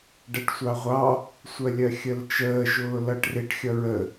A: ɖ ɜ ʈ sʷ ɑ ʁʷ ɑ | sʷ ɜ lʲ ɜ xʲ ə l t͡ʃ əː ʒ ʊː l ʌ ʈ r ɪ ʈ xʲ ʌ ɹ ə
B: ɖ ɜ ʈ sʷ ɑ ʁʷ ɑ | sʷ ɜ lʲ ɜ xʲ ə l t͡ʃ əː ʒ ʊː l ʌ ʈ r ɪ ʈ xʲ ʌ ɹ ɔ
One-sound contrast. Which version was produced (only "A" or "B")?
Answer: A